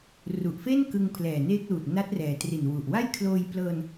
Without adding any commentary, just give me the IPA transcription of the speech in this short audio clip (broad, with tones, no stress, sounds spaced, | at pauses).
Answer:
r u˨˩ ʔ f e˥˩ n k ɯ˧ ŋ pʰ l ɛː˨˩ n eː˦˥ k̚ l uː˨˩ t̚ n a˦˥ t̚ r ɛː˩˦ t r i˨˩ n w u˨˩ ʔ w a˥˩ j kʰ l oː˧ j p l ɤː˧ n